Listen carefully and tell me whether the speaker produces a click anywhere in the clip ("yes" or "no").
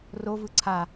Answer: yes